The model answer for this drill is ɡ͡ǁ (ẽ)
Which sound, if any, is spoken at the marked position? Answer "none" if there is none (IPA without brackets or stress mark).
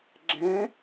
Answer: ẽ